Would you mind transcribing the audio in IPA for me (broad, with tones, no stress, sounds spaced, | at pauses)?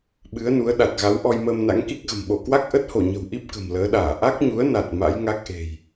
ɓ ɨ˨˦ ə̯ n u˨˦ ə̯ ɗ a˨˩ t̚ ɣ a˨˦ w ʔ ɔ˧ j m əː˧ m n a̰˧˥ ŋ k i˦˥ k̚ ɣ ə̤˨˩ m ɓ o˧˩ k w a˦˥ k̚ ʔ ə˦˥ t̚ h o˧˩ ɲ ə̤˨˩ w ʔ i˦˥ p̚ k ə̤˨˩ m l əː˨˦ ɗ aː˧˩ ʔ a˦˥ k̚ ɲ u˨˦ ə̯ n a˨˩ t̚ m a̰˧˥ j ŋ a˦˥ k̚ ʔ e̤˨˩ j